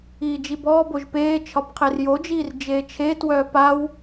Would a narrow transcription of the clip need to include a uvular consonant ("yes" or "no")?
yes